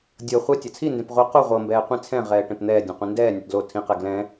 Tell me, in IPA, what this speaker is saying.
dʲ ɤ χʷ ɛ tʲ a t͡sʰ i n d ẽ p ʁʷ ɯ q u ʁʷ ɤ m b ɛː qʷ ĩ t͡sʰ ɛ̃ ʁ ɛː ʈ ẽ p n̪ ɛː dʲ ã qʷ ĩ n d ɛː nʲ o ʈ d l o tʰ ĩ q ɛ ɡ l ɛ̃

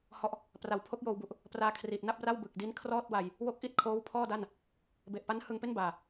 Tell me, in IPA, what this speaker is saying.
h ɔ˨˩ ʔ | p r a˩˦ w pʰ o˦˥ k̚ j oː˧ w b u˨˩ ʔ | p r aː˧ kʰ r iː˨˩ t̚ n a˥˩ p̚ r a˥˩ w b ɯ˨˩ k̚ d i˦˥ n kʰ r ɔː˥˩ t̚ w a˧ j | w o˦˥ k̚ ʔ i˦˥ t̚ kʰ oː˦˥ w pʰ ɔː˥˩ d a˥˩ n | b e˨˩ ʔ p a˦˥ n h ɯ˧ ŋ p e˥˩ n b aː˨˩

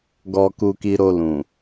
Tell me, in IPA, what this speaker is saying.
ɡ ɔ˧ k u˧ k i˧ ɾ o˧ l ũ˨

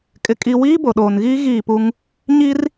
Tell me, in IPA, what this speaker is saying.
kʼ ɪ˦ kʼ i˦ w iː˦ b o˨ ɗ oː˨ n ɣ iː˦ ɣ iː˦˨ p u˦ ŋ | ɲ i˦ r

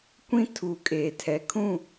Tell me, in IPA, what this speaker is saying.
kʷ ĩ˦ tʰ u˨ kʼ eː˨ tʰ ɛ˨ kʰ ũ˦˨

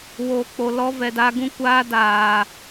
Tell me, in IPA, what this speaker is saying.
w oː˨ k͡p o˨ l ɔ˧ v ɛ˨ d a˧ ɡ ũ˦ kʷ aː˦ d aː˨

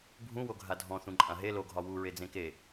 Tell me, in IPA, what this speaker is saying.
bʱ ũ w o ɡʱ a dʱ ɔ̃ θ ũ ǃʼ ã ɦ e l o ɡʱ ɒ w u ɹ e d͡z ẽ k e

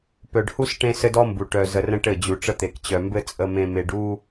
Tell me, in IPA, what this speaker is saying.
p œ˨ ɖ h u˦ s ʈ ẽ˦ s ɘ˦ d ɔ˦ m b u˨ ʈ œ˨ z ə˨ r ə̃˦ ʈ ɘ˦˨ d͡ʑ u˨ ʈ͡ʂ ə˦ t̪ e˨ k t͡ɕ œ˨ m b ɘ˦ t͡sʼ ə˨ m ẽ˨ m e˨ ɖ u˦

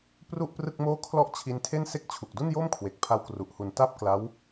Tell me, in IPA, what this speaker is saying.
p r u˥˩ ʔ p r ɯ˥˩ k̚ m oː˥˩ kʰ l ɔ˥˩ ʔ t͡ɕʰ i˧ n tʰ e˥˩ n s e˥˩ k̚ t͡ɕʰ u˨˩ k̚ d u˥˩ n j o˥˩ m kʰ w e˨˩ k̚ pʰ a˧ w k r u˨˩ ʔ h u˨˩ n t a˥˩ p̚ k l a˦˥ w

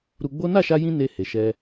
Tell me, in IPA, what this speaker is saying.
ɾ u˧ ɡ͡b o˦ n a˦˨ ʃ a˧ j ĩ˧ n e˧ h e˨ ʃ ɛ˧

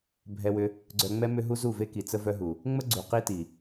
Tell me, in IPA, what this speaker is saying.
bʱ ɛ˧ w ʏ˧ | ɡ͡ǀ œ˧ ŋ͡m ɛ˦ m ʏ˦ ɦ u˦ z u˦˨ v e˦ k i˨ t͡s ə˦ v œ˦ ɦ u˨ | ŋ͡m ə˦ ɡ͡ǀ u˨ q i˦ t i˨

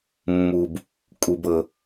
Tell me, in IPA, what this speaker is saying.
mː u˨ b | kʼ u˦ b ɤ˦

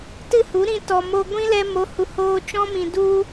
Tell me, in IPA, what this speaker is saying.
t ɨ˦˨ h u˨˦ ɾ ĩ˧ t ɔ˨ m o˧ ɡʷ ĩ˦ l ɛ˧ m o˨˦ h u˨ h oː˧ t͡ʃ ɔ̃˦ m ĩ˨ d u˦

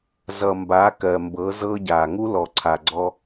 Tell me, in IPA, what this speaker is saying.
z ʌ˨ m b a˨˦ k ɜ˨ m b ɤ˨˦ z ɤ˦ ɟ a˨ ŋ u˦ l ɔ˨ ǀʰ a˨ ɡ͡ǀ ɔ˦

